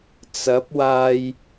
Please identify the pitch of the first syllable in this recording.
rising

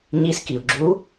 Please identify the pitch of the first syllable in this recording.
rising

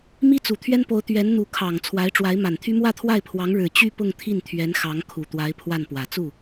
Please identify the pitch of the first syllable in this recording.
high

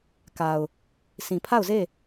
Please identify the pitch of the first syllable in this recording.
low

